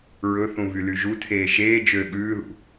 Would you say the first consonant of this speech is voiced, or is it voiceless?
voiced